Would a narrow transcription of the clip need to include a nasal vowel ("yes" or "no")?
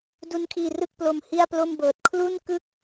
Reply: no